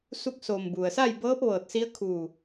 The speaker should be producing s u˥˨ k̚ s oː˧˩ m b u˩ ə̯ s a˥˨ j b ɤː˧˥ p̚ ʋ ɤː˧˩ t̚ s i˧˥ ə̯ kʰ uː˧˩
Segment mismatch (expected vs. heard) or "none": none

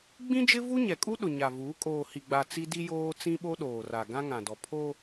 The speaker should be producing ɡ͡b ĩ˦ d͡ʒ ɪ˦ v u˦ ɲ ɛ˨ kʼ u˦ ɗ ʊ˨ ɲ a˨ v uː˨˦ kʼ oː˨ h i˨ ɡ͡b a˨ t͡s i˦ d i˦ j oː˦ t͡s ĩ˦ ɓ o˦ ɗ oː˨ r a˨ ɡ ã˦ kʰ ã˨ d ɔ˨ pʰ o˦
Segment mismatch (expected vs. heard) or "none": kʰ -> ŋ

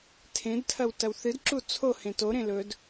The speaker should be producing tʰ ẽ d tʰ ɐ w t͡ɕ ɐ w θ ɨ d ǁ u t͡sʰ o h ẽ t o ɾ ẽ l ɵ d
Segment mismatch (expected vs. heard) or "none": t͡ɕ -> t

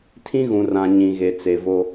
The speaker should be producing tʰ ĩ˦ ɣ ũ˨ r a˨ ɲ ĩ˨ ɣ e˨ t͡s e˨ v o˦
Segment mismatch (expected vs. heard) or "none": a˨ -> ã˨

